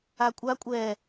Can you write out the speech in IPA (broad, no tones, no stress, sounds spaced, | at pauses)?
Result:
a kʷʼ a kʷʼ ɛ